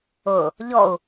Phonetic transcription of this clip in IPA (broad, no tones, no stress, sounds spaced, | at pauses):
ʊ | ʎ ɔ u̯